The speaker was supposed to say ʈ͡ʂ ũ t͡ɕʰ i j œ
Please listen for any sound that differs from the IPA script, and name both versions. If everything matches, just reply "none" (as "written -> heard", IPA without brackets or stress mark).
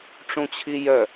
none